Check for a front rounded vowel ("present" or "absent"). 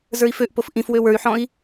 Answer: present